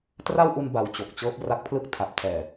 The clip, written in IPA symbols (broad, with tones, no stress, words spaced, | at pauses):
tra˥˩wʔu˧nba˨˩w t͡ɕo˨˩k̚t͡ɕɤː˦˥p̚ ra˦˥k̚pʰlɯ˥˩k̚ tʰa˨˩p̚tʰɛː˨˩